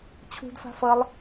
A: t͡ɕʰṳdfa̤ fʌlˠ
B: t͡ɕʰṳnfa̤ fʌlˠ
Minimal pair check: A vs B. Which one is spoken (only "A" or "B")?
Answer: A